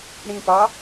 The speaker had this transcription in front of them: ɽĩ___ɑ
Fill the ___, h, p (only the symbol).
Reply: p